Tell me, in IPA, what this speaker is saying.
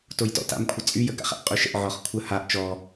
t o j t ɔ̰ t a̰ m kʷʰ ə t͡sʼ y j ə ɡ a̰ χ a̰ ʔ qʼ y ʃ ə̰ ʔ ʕ ɔ χ kʷʰ ə h a ʔ t͡ʃ ɔ

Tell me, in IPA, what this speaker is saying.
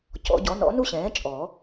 c ɔ̰˨˩˦ ɟ ɔ˩˥ n ɔ̰˩˥ n u˥ ɕ ɛ̃ː˩˥ t͡ʃʼ ɔ˨˩˦

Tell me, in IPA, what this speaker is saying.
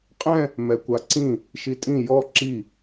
qʼ ɛ̃ | m ɛ kʷ a ǀ ĩ | ʃ i tʼ ĩ j ɔ ǁ i

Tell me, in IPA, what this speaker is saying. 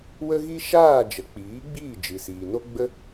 w ə˦ ɣ i˦ ʃ aː˦˨ d͡ʒ ə˨ k͡p iː˨˦ ɡ͡b iː˦˨ d͡ʒ ɨ˨ s iː˨ n o˦ ɡ͡b ə˦

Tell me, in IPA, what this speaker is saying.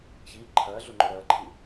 ç iː ǃʰ ɐː ɮ o ŋ͡ǃ ɵ ɾ ɐː ǃʰ i

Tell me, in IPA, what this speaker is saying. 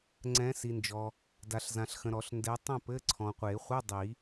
ŋ͡ǀ ɛ̃˨˦ s i˨ n d͡ʒ ɔ˨ | d a˨ ɬ z ã˨ ɬ x ə̃˨ ɾ ɔ˨˩˦ ɬ n d ɛ˨˦ tˤ ɛ̃˥˨ p ɘ˧˥˧ ǀʰ ɔ̃˨ qʷ e˨˩˦ χʷ ɯ˧˥˧ dˤ i˨˩˦

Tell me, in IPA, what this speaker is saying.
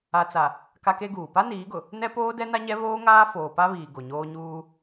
a˨ t͡s a˨ | k a˦ k e˦ ɡ uː˨ p a˦ n iː˨˦ ɡ ʊ˨ | n ɛ˦ p oː˦ d ɛ˦ n a˦ ɲ ɛ˦ β oː˦ ŋ aː˦ f oː˨ p a˦ β iː˨ ɡ o˨ ɲ oː˦ ɲ uː˦

